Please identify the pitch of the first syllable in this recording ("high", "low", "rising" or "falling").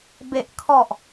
low